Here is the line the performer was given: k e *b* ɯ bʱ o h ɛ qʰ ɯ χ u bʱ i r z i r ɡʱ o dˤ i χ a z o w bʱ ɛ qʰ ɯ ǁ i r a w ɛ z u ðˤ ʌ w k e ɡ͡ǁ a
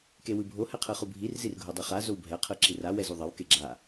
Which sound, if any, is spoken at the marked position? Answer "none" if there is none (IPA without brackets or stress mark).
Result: w